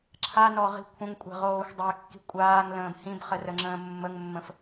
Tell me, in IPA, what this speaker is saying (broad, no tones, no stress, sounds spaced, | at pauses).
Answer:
ǁʰ a n ɔ ʁ i̤ kʷʰ ə̃ ŋ kʷʼ ɛ̤ ʁ oː xʷ dˤ ɜ kː i̤ kʷʼ aː ŋ l ə̃ː b h ĩ b χ ə r ə ŋ͡ǁ ə̃ː mː ə ŋ mː ə̃ f